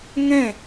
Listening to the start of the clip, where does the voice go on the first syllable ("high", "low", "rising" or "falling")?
falling